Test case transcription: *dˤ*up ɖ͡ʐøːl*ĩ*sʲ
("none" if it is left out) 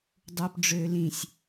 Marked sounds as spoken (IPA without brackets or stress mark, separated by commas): dˤ, ĩ